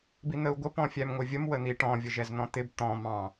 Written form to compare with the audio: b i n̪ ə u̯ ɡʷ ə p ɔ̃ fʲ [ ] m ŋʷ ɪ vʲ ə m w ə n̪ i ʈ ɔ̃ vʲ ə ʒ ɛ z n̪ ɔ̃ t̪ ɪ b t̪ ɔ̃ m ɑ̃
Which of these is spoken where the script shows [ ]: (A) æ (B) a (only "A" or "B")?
A